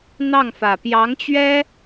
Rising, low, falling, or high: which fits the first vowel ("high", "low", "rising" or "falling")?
falling